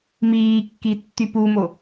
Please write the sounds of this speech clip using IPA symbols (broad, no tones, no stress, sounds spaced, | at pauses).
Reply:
m iː kː i tː y p u m o